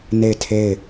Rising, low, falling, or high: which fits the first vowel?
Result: falling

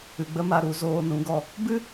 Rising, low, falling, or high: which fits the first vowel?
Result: low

